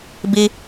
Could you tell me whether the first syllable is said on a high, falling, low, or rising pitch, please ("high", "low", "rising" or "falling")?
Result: high